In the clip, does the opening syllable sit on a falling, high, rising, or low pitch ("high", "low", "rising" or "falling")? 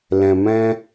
low